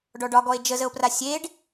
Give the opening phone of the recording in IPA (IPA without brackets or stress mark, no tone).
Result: ɖ